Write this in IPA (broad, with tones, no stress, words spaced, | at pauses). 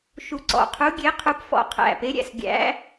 ʃu˧˩ǀɔ̰˧˩qʰu˧˥ ɡʲe˧˥qʰu˧˥p fɔ̰˧˩qʰæ̰˧˩pe˧˥ɾʲæ̰˧˩s ɡʲæ̰˧˥